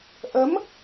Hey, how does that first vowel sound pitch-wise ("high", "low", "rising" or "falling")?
rising